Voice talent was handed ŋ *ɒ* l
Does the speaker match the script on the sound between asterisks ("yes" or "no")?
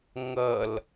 no